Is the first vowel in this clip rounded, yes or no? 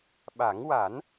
no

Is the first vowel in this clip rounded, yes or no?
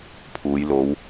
yes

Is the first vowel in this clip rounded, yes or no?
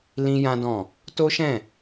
no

